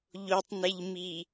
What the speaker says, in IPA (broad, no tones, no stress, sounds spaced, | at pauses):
ʎ o tˤ n e ʎ m i